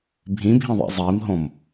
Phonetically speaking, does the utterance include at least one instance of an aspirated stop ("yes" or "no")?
no